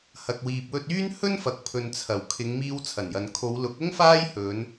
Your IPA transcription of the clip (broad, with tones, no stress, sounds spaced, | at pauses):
h ɐ˨ k̚ w iː˨ p̚ w ɵ˧ t̚ yː˥ n h ɵ˥ n f ɐ˨ k̚ pʰ ɵ˨ n t͡sʰ ɐ˨˩ w kʰ ɪ˨˧ ŋ m iː˧ w t͡sʰ ɐ˨˩ n j ɐ˨ n kʰ o˨˧ w l ʊ˨˥ k̚ ʊ˥ ŋ f aː˥ j h ɵ˨˧ n